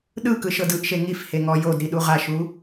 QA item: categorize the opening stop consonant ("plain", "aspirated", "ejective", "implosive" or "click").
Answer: implosive